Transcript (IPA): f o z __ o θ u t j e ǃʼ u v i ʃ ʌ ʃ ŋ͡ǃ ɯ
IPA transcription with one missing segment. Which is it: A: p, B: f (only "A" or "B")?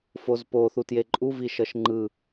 A